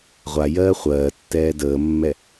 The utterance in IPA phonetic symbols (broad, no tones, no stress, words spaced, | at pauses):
ʁʷajɜː χʷɜːtːɛː dəːmːɛ